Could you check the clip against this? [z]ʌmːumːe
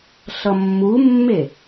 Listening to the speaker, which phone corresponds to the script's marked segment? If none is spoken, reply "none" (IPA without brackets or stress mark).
ɬ